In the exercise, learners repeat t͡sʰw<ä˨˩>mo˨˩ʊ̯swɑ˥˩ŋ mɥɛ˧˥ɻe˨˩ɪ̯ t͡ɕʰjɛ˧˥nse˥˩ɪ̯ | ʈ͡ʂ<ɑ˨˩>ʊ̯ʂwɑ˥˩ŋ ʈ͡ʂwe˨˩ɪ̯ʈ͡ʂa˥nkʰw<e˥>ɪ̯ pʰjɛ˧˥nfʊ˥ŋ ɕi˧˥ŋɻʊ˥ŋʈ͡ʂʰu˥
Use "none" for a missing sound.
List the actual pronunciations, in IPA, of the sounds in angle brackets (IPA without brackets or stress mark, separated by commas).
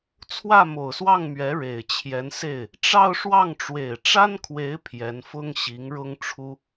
ä˥˩, ɑ˥˧, e˧˥